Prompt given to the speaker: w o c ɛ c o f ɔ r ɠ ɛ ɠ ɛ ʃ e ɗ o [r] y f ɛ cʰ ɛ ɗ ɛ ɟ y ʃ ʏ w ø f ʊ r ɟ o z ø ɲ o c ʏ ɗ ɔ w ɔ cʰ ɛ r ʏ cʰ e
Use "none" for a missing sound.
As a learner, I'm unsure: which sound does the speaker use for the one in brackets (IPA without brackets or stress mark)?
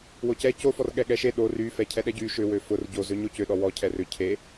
r